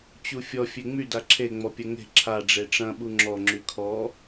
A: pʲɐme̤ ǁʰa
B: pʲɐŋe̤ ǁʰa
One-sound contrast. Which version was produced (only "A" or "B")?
B